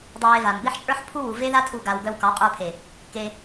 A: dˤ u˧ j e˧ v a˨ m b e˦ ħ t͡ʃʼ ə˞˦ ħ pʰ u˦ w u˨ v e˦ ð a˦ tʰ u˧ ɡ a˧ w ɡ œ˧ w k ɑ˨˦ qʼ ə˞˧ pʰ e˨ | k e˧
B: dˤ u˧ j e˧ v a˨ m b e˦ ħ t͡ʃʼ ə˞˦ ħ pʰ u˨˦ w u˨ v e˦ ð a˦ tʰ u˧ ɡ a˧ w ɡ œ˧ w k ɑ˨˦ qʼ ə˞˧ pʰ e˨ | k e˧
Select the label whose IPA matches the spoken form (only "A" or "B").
A